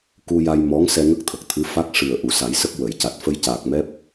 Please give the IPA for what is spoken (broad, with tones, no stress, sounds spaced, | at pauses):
k u˧ j a˧ j m ɔ˧˥ ŋ s ɛ˧ ŋ ə˦˥ k̚ t̪ʰ ə˨˩ k̚ t̪ʰ ɨ˧˥ f a˦˥ k̚ ʂ ɨ˨˩ ə̯ ʔ u˨˩˨ s a˨˩˦ j s ə˦˥ k̚ w ə˨˩˨ j c a˨˩ t̚ f ə˧ j c aː˨˩ k̚ m ɛ˦˥ p̚